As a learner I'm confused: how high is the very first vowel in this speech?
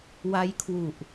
low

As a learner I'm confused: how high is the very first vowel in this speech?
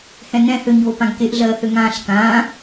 mid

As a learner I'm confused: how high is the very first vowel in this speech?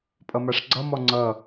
mid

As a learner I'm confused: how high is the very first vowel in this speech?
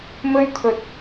mid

